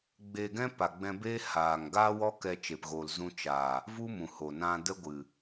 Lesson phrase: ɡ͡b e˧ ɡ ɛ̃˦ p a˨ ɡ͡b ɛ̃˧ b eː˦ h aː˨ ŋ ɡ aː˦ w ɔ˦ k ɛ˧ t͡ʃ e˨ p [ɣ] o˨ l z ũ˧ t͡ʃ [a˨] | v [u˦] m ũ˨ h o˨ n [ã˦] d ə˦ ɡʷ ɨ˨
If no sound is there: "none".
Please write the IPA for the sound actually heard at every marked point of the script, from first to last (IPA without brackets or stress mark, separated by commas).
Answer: ɣ, a˨, u˦, ã˧